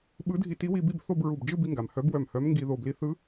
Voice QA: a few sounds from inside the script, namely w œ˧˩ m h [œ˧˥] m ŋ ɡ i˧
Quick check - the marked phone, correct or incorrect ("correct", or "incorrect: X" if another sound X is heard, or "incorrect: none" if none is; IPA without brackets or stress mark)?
correct